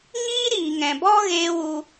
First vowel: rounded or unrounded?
unrounded